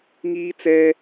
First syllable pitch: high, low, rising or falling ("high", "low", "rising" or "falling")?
high